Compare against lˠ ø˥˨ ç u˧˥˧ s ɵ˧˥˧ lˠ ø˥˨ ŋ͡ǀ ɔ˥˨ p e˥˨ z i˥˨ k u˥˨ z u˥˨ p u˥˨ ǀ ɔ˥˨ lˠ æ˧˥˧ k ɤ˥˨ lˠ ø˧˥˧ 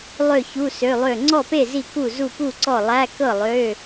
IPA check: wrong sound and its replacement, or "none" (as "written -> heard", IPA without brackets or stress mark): ɵ˧˥˧ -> ø˧˥˧